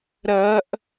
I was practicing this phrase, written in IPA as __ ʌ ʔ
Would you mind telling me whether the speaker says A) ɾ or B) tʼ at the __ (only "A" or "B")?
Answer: A